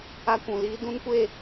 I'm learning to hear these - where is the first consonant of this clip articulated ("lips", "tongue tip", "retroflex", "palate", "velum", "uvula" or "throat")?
velum